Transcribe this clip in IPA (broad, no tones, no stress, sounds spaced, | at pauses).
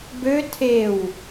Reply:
b ø tʰ e w